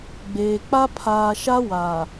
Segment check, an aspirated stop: present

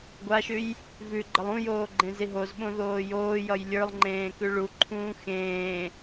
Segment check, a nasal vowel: present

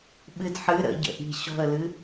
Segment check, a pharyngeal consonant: present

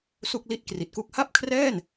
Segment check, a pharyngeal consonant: absent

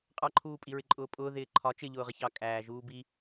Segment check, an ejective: present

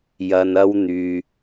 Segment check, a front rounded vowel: present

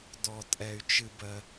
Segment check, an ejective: present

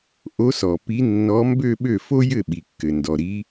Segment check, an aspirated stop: absent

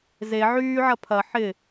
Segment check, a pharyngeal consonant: present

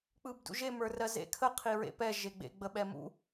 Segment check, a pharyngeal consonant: absent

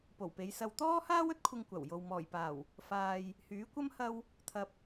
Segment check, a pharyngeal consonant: absent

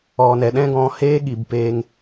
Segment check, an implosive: present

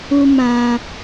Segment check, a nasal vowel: present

